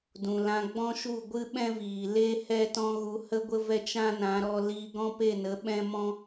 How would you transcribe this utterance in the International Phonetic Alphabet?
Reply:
d ũ˨ l ã˧ ɡ͡b ɔ̃˦ ʃ u˦˨ ɡʷ ɨ˦ ɓ ɛ̃˦ v iː˨ l e˦ h ɛ˦ t ɔ̃˦ ɣ u˧ h ə˦ ɡʷ ə˦ v ɛ˦ t͡ʃ ã˦ n ã˨˦ ɾ ɔ˧ l iː˧ ɡ ɔ̃˦ p e˦˨ n ə˨˦ ɓ ɛ̃˦ m ɔ̃˦

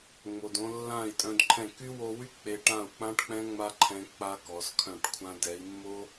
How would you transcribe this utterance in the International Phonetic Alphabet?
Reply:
ŋ͡m o˨ d õ˧ lː ã˦˨ i̯ tʼ œ̃˧ d ǃʰ ɛ̃˦˨ k y˦ w o˧ w y˦ k͡p e˧ ʈ ã˦˨ u̯ k͡p ã˦ ʈ k͡p ɛ̃˦ ŋ͡m a˦ ǃʰ ɛ̃˧ k͡p a˦ k ɔ˨˦ s kʰ œ̃˦˨ ʈ kʷʰ ã˧ d ɛ˨˦ i̯ mː o˦

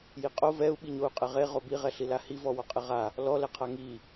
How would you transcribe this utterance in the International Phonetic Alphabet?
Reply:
j i qʼ o v ɛ u̯ ɓ i ɲ o u̯ qʼ ɛ ʁ e ʁ o b i ʁ ɛ ɬ i l a h i v ɔ w ɔ qʼ ɪ ʁ a | l ɔ l ɛ qʰ a ŋ i

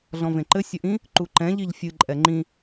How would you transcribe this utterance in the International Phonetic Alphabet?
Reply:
ɮ ɔ̃ v ẽ ǃ ɘ sʲ ɘ ʔ ĩ | ǃ u ǃ ɛ̃ ʎ i ʎ fʲ ɨ ǃʼ ɛ ŋ͡ǃ ĩ

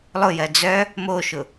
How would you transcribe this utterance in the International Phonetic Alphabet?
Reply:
lˠ ʊ j ɜ d͡z œ | m o ʃ ʊ

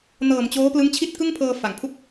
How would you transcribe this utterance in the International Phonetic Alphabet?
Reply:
n ɤː˨˩ m t͡ɕ oː˦˥ p l ɯ˦˥ ŋ t͡ɕʰ i˥˩ t̚ k ɯ˥˩ ŋ pʰ ɤː˧ f a˩˦ ŋ pʰ u˥˩ k̚

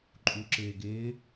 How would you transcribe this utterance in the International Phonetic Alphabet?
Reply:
ǃʼ u ǁ ɪː ɡ ɪː

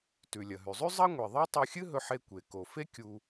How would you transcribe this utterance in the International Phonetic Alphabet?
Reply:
t ʉ˩ lʲ ɐ˩ ɦ ʉ˩ zˤ ʉ˥ zˤ ɐ˥ ŋʷ e˩ ðˤ a˥ tˤ u˧ xʲ ɨ˥ ɦ ɵ˧ ħ e˧ kʷ e˩ k o˩ f e˥ kʲ u˧

